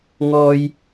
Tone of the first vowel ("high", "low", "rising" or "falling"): low